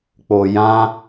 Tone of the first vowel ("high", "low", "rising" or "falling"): low